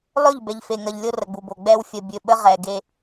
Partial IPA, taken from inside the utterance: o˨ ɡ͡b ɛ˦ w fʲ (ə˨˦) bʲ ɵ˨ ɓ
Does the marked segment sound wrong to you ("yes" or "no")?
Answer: yes